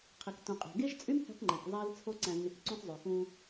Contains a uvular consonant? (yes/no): yes